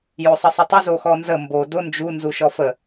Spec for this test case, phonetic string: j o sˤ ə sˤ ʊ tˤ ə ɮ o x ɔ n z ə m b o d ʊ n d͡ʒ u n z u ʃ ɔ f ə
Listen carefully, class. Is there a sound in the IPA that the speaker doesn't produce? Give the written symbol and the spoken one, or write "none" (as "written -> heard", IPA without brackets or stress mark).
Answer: ɮ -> z